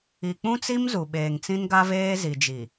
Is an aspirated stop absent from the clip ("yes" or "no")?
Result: yes